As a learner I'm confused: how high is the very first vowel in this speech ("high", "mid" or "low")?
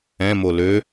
mid